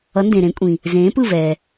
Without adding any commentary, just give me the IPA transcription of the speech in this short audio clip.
ʌ˨˥ n d ẽ˨ ɾ ẽ˨˥ kʷʼ ĩ˨ | z ẽː˨˥ p ɯ˥˩ v ɛː˨

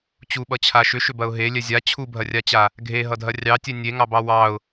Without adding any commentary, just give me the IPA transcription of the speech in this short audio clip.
t͡ɕ u ɓ ʌ t͡ɕʰ a ʃ ʏ ʃ ʏ b ɐ ʊ̯ ɦ e lʲ ɛ zʲ a t͡ɕʰ u bʱ ɐ rʲ a t͡ɕ a | ɡʱ e ɦ ʌ dʱ ɐ rʲ ɑ tʲ ɛ nʲ e ŋ ɑ b ɑ w ɑ ʊ̯

